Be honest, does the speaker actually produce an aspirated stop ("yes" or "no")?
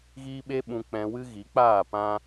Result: no